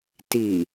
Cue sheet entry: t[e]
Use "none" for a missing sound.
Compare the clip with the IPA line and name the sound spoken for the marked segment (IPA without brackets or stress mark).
i